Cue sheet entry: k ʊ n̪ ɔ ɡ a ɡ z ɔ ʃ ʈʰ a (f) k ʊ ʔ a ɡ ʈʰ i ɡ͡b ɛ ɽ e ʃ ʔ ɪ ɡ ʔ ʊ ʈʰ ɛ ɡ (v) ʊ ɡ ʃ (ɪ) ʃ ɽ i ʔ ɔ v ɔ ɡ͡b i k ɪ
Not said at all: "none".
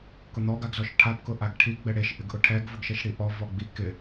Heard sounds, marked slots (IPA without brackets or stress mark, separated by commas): p, v, ɛ